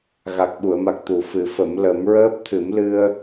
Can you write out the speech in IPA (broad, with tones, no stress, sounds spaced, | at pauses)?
ɣ a˨˩ k̚ ɓ u˨˩˨ ə̯ m a˨˩ k̚ t̪ u˨˩ f ɨ˨˩˦ f ə˨˩˦ m l ə˨˩˦ m ɹ əː˦˥ p̚ t̪ʰ ɨ˨˩˦ m l ɨ˧ ə̯